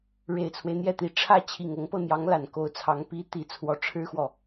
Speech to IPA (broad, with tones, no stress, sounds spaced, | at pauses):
ɻ e˨˩ ɪ̯ t͡sʰ w e˦ ɪ̯ n̪ j ɛ˥˩ t̪ i˨˩ ʈ͡ʂʰ ä˥˩ t͡ɕʰ i˨˩ ŋ ɤ˧˥ ŋ p ɤ˧ n̪ j ɑ˧˥ ŋ l a˨˩ n k o˧˥ ʊ̯ t͡sʰ ɑ˧˥ ŋ p i˧˥ t̪ i˧˥ t͡sʰ w ɔ˧˥ ʈ͡ʂʰ ɻ̩˥ x w ɔ˨